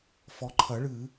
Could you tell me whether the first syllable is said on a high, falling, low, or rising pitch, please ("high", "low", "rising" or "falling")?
low